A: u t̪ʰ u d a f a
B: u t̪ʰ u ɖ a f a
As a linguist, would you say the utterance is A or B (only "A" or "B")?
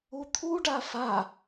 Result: B